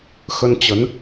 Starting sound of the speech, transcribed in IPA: x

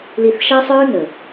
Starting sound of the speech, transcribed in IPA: l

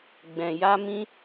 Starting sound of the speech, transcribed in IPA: ɡ͡b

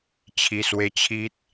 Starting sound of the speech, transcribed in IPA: t͡ɕʰ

